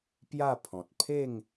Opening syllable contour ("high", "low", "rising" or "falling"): falling